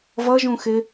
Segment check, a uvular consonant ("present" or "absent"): absent